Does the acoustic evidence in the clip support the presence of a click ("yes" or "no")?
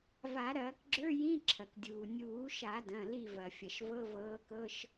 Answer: yes